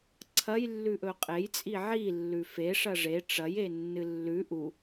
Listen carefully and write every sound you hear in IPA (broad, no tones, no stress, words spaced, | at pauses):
ǀʰɐjlːʉʔɵ qʼejt͡sʼi ʕilːʉ feʂɐ ʐe ʈ͡ʂɐjenːɨ lːʉ ʔu